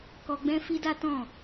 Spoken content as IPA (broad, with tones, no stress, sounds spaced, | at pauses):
k ɔ˧ ɡ͡b ɛ̃˦ f i˦ d a˦ t ɔ̃˦˨